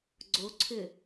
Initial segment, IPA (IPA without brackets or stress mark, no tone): ɡ͡ǀ